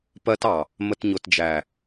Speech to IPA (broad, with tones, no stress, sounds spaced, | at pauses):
p ɜ˧ t ɑ˨ | m ə˨ t ɲ ʊ˨ t d͡ʒ æ˨